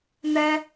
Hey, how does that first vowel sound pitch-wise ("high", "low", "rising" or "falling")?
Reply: high